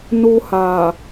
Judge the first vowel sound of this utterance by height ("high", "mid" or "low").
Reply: high